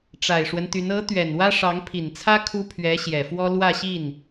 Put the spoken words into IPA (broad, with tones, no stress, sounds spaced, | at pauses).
ʈ͡ʂ a˨˩ ɪ̯ ʂ w ə˦ n t̪ y˧˥ n ɤ˧˥ t̪ ɥ ɛ˨˩ n w ä˥ ʂ ɑ˧˥ ŋ pʰ i˨˩ n t͡sʰ ä˥ kʰ u˥ pʰ ɥ ɛ˧˥ ɕ j ɛ˨˩ f w ɔ˥ l w ä˥˧ ɕ i˥˩ n